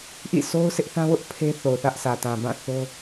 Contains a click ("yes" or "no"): no